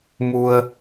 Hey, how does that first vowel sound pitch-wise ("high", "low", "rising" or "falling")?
low